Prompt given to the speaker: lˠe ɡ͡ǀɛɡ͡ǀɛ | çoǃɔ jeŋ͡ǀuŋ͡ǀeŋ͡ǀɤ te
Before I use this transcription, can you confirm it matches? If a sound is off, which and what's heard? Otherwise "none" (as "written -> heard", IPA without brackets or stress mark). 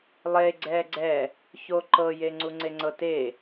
ɔ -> ɤ